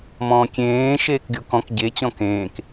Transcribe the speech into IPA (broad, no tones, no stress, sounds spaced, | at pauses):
m ɔ̃ː kʲ ẽː ʃ eː k ɡʲ o k ɔ̃ k ɟ e t͡ɕ ɔ̃ k ẽː k